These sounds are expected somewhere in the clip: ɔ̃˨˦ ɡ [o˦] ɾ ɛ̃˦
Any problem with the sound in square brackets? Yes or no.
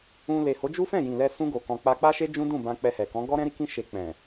yes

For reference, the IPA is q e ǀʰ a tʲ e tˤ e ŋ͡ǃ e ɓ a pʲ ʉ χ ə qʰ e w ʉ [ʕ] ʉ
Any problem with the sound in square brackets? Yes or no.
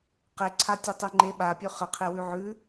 no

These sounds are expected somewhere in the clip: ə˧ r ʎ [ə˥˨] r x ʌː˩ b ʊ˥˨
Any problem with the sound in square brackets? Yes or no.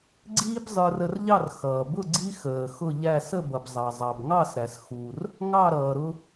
yes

